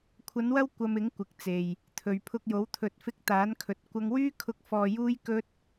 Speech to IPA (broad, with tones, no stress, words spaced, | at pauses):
kʷʰɐ˨˧nwɐ˧w kʷɐ˧mɪ˨˥ŋ kʷɪ˨k̚t͡se˨j | t̪ʰɵ˨ɥpʰʊ˧k̚jo˨˥w t̪ʰɵ˨˥t̚fɪ˧k̚ t̪aː˨˥nkʰɵ˨t̚ kʷɐ˥ŋ wyː˥kʰʊ˧k̚ fɔː˨ juː˥jkɵ˥t̚